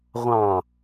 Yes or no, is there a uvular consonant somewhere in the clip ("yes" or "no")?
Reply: yes